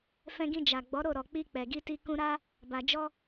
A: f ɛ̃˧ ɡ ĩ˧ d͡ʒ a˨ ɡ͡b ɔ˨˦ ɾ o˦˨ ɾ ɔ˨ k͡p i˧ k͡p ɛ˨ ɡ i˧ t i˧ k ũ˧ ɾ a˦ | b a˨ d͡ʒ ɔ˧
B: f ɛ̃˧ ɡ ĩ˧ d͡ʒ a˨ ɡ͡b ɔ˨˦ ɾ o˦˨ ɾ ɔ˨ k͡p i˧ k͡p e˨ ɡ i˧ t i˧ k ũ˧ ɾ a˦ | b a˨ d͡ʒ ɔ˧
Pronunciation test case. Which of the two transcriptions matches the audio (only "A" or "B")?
A